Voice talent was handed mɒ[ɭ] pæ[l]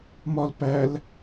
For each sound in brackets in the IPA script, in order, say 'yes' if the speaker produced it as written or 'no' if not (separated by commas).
no, yes